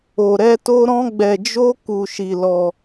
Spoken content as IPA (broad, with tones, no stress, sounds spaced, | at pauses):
o˧ ɾ ɛ˦ t o˦ ɾ ɔ̃˦ ɡ͡b ɛ˧ d͡ʒ o˦ k u˧ ʃ i˧ l ɔ˧